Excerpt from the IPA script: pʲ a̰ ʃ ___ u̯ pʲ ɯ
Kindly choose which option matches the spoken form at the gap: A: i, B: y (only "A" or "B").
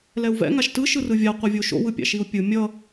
A